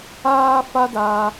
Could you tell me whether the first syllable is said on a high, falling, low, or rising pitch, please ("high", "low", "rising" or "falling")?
high